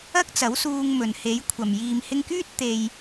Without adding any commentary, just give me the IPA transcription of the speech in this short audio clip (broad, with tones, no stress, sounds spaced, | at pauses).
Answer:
ɐ˥ k̚ t͡s ɐ˨˥ w s uː˧ ŋ m ɵ˨ n h e˨˥ j kʷʰ ɐ˨ m j iː˨ m h ɪ˧ ŋ k yː˥ t̚ t̪ e˧ j